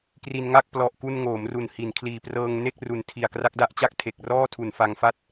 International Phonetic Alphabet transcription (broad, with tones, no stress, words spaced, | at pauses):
kri˧nŋa˥˩k̚ plɔ˨˩ʔ ku˧nŋoː˩˦mru˨˩n hi˩˦nkʰliː˨˩ prɤː˧ŋne˥˩k̚ru˨˩n tʰi˨˩a̯kra˦˥k̚da˦˥ʔt͡ɕa˥˩k̚ tʰe˨˩k̚rɔː˥˩tʰu˨˩n fa˧ŋfa˥˩t̚